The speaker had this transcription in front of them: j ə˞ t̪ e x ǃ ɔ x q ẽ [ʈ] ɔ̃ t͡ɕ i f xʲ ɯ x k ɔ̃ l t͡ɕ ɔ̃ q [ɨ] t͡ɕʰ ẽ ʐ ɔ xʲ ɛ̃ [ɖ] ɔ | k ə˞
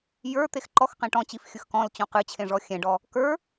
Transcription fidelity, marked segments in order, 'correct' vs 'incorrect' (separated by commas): correct, correct, correct